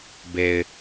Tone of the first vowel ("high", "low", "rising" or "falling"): low